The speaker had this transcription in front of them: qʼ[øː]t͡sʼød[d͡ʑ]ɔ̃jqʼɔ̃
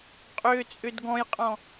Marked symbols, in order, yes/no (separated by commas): yes, no